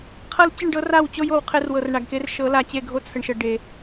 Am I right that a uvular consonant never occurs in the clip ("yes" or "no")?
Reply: no